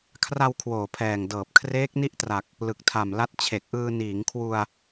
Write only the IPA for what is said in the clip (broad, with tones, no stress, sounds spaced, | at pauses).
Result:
kʰ r a˧ w kʰ w oː˨˩ pʰ ɛː˨˩ ŋ d ɤː˨˩ p̚ kʰ r eː˦˥ k̚ n i˥˩ ʔ t r a˨˩ k̚ | l ɯ˨˩ k̚ tʰ a˨˩ m l a˦˥ t̚ t͡ɕʰ e˨˩ k̚ ʔ ɯː˧ n iː˩˦ ŋ kʰ w u˧ a̯